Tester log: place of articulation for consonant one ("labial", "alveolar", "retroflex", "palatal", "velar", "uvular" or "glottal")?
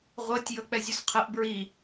uvular